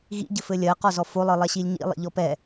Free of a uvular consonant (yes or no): no